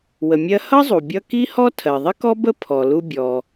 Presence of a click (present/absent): absent